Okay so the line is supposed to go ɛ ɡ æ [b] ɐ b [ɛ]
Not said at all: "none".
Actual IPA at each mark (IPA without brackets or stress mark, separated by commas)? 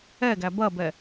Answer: b, ɛ